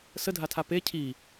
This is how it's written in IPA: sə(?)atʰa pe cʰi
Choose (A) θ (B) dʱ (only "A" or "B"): B